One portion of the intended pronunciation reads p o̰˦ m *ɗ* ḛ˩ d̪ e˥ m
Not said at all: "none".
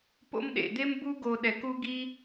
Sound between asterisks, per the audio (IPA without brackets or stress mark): ɗ